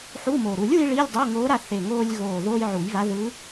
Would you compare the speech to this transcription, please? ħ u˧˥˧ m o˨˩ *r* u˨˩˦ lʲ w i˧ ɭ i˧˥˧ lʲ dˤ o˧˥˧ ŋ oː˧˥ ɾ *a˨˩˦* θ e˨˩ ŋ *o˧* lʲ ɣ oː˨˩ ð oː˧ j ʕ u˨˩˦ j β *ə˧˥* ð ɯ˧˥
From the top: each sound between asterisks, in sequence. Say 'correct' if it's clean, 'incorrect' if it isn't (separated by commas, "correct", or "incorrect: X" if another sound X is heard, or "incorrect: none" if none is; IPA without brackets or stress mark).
incorrect: ɾ, incorrect: a˧, incorrect: oː˧, incorrect: a˧˥